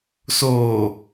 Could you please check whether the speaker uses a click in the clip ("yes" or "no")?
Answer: no